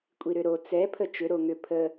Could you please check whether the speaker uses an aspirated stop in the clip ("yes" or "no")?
yes